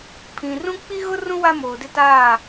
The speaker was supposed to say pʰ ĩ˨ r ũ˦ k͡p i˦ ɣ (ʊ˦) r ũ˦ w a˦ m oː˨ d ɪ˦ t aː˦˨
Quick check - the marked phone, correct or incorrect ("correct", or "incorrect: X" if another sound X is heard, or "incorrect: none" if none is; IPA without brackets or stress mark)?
correct